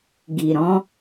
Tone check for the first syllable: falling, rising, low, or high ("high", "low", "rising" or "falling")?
low